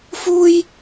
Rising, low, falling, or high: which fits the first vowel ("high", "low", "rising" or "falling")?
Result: high